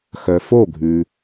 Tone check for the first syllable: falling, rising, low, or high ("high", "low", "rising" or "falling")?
low